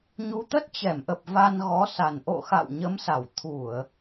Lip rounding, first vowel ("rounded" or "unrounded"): rounded